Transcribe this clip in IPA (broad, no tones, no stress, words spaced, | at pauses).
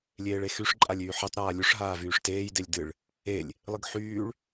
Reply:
lʲeːɭexyʂ ǃʼalʲyːħetˤ ɾaːlʲuʂ ɦaːvyːʂteːj delʲdɨɭ | elʲ | lˠɨɡħyːɭ